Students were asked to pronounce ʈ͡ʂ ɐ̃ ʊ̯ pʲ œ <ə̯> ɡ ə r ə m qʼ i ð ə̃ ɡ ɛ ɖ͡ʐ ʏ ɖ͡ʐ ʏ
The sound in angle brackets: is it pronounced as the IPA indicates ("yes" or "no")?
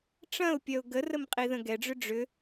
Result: no